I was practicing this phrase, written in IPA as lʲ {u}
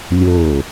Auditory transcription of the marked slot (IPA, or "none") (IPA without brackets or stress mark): o